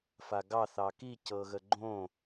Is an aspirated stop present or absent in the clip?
absent